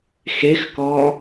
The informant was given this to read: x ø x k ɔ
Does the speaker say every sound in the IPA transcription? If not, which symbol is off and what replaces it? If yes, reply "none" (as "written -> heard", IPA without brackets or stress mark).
ø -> e